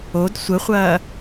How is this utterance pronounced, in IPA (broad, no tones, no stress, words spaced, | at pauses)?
od sʷəχʷɐː